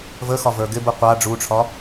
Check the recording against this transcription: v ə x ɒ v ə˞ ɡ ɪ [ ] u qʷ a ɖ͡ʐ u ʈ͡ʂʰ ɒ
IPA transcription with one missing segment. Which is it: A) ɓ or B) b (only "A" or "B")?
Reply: B